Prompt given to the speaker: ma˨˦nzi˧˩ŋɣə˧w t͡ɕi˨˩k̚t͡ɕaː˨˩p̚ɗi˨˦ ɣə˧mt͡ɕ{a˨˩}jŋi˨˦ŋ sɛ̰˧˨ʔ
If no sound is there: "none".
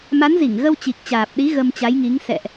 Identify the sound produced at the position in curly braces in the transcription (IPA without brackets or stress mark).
a˨˦